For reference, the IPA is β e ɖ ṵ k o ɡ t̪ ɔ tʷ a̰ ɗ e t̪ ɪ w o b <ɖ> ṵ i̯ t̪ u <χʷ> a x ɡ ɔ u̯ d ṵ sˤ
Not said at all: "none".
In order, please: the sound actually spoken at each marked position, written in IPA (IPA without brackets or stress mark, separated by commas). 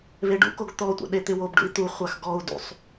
ɖ, χʷ